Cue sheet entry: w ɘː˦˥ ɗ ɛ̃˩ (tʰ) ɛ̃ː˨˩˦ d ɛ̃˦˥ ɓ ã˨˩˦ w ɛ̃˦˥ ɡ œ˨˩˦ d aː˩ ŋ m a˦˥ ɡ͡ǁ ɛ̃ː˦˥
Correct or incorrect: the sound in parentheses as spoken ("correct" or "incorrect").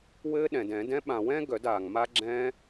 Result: incorrect